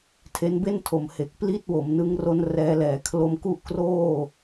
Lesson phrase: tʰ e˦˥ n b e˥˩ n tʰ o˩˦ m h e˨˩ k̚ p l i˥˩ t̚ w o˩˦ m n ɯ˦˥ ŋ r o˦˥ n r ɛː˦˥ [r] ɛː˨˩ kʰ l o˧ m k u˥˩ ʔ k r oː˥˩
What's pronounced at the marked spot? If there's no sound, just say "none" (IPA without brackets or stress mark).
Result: l